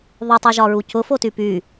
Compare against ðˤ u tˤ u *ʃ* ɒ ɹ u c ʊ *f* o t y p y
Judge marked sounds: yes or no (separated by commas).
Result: no, yes